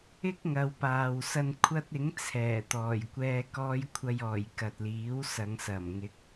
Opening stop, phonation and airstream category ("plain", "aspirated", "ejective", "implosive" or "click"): plain